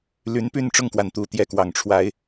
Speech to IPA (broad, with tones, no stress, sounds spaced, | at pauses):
l y˨˦ n p y˥˨ n ʈ͡ʂ ʊ˥˨ ŋ k w a˩ n t̪ u˨˩ t̪ j ɛ˥˨ k w ɑ˨˩ ŋ ʈ͡ʂʰ w a˨˦ ɪ̯